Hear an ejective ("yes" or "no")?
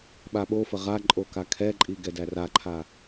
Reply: yes